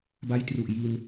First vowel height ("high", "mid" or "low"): low